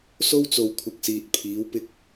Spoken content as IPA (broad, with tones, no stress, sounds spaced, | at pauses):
s o˥ w t͡s o˨ w kʷʰ ɐ˨ k̚ s iː˨ t̚ pʰ iː˨˥ w p ɪ˧ k̚